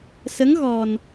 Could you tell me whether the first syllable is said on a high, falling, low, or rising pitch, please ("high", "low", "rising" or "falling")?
rising